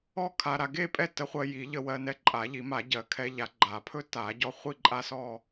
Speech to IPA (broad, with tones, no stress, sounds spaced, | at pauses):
ɔ˥˧ kʰ a˧ ɾ a˧ ɡ e˥˧ pʼ ɛ˥˧ t ə˧ χʷ ɜ˧ j i˨˩˦ ʎ ə˧ w ɜ˧ n ɛ˧ ǃʼ a˨˩˦ ʎ i˨˩˦ m a˨˩˦ ɟ ɜ˨˩˦ kʰ ɛ˧ ʎ a˨˩˦ ɡ͡ǃ a˨˩˦ pʰ ɵ˥˧ t a˨˩˦ ɟ ɔ˧ χʷ i˥˧ ǃʼ a˥˧ s ɔ˥˧